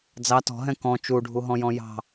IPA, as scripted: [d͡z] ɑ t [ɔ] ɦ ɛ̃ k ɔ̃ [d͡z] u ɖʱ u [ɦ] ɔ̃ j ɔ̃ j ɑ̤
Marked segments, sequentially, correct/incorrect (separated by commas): correct, incorrect, incorrect, correct